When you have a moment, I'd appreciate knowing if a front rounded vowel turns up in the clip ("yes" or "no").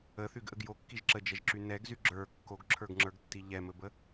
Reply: yes